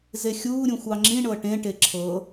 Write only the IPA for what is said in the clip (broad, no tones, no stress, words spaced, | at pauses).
zexʲuːɾʲũ xʷɑŋ͡ǁĩɳɤ ʈẽʈe ǁʰɤ